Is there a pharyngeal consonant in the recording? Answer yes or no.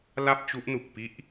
no